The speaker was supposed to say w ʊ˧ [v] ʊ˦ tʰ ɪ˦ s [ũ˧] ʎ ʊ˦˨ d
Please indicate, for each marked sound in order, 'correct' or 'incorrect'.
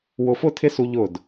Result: incorrect, incorrect

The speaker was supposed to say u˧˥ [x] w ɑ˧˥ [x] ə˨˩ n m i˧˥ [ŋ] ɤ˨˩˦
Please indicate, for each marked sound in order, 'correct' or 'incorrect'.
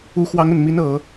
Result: correct, incorrect, incorrect

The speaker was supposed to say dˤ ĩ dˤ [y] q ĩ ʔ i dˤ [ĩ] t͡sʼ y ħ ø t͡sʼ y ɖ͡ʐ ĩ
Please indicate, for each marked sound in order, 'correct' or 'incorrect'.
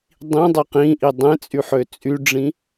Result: incorrect, incorrect

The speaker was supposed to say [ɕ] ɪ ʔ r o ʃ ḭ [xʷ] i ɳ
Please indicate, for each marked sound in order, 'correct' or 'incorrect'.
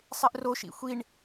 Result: incorrect, correct

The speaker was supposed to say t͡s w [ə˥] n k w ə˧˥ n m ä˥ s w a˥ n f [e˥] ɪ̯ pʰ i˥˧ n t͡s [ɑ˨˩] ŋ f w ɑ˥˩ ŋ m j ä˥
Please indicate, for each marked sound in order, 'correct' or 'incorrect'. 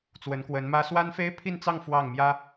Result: incorrect, correct, incorrect

